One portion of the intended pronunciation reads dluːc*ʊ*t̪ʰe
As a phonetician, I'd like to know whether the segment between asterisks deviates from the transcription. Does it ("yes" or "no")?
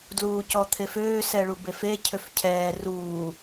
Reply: yes